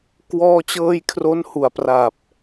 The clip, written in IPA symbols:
k w ɔː˧ t͡ɕ ɤː˧ j kʰ r o˦˥ n h u˩˦ a̯ p r a˨˩ p̚

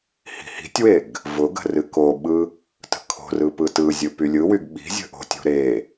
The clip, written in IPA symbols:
h i̤ h i̤ tʲ w e ɡ | v ʊ ɡ ə̤ r ɨ k o ɓ ɯ | t ə̤ kʰ o̤ r ɯ p ɯ t ɯ zʲ ɯ p y lʲ ɯ w y ɡ ɓ i̤ zʲ ə̤ ʔ o̤ tʲ o̤ ɾ e

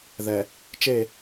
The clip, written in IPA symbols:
ð ɛ˨ | t͡ʃ e˦˨

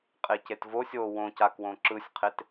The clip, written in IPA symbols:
qʼ e c e t v o sʲ o w õ c a k w õ ǁ ɯ sʲ qʰ e t

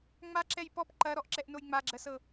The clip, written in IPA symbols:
ŋ͡m a ǁ ɛ j p ɔ p ǃ ɐ ɾ ɔ ʔ ǁ ɛ ʔ n o j ŋ͡m a ɡ͡ǁ ɜ s ɤ

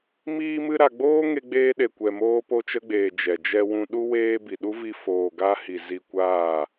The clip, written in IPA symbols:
m iː˧ m ɨ˧ ɾ a˨ ɡ͡b oː˦ ŋ e˧ ɡ͡b eː˧ ɗ e˨ kʷ ɛ˨ m oː˧ p o˧ t͡ʃ ə˧ ɡ͡b eː˨ d͡ʒ ɛ˨ d͡ʒ ɛ˧ w ũ˧ ɗ u˧ w eː˧ b i˨ ɗ u˦ v i˧ f oː˨ ɡ a˧ h i˨ z i˧ kʷ aː˦˨

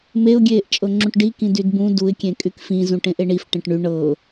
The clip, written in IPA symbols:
m e ʊ̯ ɡʲ eː ʔ t͡ʃʼ ɤ ŋ͡ǁ ũ ʈ ɖ i k ĩ d y d b ũ d u ɪ̯ kʲ ẽ kʼ y k f ĩ z ũ ʈ ẽ ʔ e ɳ i f ʈ ẽ ʈ ɳ y ɳ ɤ

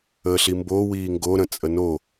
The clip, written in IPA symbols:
əː ɬ i m b o w iː ŋ ɡ o ɾ ə̃ t͡sʼ ə n o

